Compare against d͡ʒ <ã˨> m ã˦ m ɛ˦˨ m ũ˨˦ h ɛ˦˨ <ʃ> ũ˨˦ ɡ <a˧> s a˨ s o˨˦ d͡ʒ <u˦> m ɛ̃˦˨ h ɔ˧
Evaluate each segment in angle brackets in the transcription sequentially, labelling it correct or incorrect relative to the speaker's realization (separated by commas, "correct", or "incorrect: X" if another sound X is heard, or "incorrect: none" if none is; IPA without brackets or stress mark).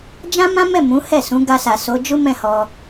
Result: incorrect: ã˦, incorrect: s, correct, correct